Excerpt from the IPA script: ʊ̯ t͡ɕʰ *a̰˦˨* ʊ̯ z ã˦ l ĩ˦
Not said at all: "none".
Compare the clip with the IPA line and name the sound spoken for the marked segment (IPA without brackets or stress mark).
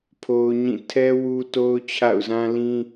a̰˦˨